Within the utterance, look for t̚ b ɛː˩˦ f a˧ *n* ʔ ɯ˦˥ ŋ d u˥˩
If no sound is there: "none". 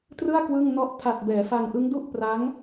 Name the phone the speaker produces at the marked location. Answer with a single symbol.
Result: ŋ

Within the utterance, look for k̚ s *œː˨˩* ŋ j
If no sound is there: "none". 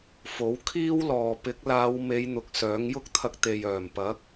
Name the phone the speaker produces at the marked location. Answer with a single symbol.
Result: œː˨˥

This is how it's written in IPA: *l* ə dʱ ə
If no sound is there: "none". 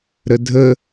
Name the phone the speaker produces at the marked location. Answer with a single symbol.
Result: ɾ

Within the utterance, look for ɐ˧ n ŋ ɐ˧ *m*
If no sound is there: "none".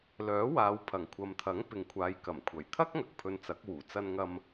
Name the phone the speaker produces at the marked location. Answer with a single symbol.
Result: m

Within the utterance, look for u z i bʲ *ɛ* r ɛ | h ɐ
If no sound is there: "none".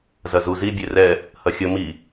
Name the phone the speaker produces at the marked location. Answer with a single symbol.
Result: e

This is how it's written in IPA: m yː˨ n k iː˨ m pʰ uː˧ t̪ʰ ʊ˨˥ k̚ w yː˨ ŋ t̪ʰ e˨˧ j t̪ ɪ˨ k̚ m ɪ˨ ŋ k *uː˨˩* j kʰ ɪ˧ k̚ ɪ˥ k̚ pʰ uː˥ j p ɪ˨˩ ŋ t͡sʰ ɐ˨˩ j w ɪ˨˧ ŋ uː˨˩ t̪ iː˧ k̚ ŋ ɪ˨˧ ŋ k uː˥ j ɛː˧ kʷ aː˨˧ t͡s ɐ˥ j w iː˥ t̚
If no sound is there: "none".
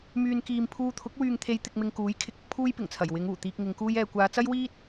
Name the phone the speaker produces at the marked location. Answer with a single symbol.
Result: uː˨˥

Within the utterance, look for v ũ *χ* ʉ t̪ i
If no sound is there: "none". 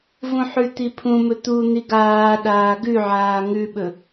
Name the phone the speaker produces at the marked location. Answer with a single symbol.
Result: ħ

